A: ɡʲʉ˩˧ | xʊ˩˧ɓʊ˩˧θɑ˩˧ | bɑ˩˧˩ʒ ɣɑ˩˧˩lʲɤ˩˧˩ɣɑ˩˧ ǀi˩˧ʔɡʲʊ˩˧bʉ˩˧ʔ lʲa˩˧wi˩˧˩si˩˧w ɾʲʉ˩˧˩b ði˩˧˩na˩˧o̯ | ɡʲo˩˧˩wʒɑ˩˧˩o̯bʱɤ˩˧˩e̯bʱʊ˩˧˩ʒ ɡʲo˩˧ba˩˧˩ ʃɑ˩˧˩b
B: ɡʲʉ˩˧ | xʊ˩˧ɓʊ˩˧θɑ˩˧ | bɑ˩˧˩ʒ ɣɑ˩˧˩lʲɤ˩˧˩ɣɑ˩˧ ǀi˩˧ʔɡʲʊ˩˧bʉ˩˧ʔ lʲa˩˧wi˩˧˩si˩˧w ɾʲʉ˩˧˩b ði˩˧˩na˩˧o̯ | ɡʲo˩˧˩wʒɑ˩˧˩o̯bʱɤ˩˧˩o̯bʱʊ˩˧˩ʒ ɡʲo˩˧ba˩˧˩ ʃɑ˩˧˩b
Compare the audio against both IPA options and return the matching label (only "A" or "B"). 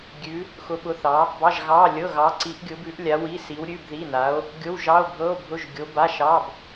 B